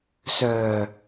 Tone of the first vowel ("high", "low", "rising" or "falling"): low